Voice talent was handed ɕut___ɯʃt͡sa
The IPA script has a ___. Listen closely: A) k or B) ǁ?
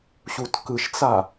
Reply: A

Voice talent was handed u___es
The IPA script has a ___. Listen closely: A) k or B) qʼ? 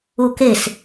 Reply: A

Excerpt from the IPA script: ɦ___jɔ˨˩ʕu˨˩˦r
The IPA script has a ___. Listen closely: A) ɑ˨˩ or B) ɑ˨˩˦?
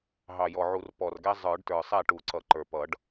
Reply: A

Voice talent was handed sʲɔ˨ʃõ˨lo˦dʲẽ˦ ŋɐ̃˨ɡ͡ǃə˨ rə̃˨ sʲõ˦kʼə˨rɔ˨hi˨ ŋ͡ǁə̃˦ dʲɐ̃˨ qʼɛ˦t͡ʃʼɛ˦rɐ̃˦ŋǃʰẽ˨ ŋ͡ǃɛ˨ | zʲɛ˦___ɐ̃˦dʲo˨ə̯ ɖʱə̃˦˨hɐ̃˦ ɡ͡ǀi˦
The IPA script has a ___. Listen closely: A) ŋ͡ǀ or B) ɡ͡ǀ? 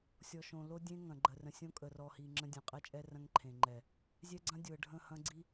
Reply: B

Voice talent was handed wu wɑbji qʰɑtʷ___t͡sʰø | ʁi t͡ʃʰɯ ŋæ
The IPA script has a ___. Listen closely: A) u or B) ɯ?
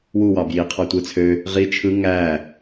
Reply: B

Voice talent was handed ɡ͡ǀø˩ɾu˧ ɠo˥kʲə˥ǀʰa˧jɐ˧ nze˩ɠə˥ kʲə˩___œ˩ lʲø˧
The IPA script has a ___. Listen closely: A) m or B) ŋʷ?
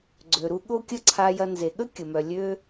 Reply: A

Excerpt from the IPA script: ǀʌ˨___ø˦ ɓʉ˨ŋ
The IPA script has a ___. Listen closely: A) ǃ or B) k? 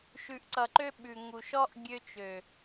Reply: A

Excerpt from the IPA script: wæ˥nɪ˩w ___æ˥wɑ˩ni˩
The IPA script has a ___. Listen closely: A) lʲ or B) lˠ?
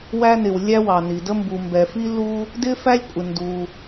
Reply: A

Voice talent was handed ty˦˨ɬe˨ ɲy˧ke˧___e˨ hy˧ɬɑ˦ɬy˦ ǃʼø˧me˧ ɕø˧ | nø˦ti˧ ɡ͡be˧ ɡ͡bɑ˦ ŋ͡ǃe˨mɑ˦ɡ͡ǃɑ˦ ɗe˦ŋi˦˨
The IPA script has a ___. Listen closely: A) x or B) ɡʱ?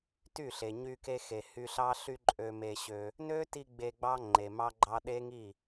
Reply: A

